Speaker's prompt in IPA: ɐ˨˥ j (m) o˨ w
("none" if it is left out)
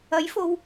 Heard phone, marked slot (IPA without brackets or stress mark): f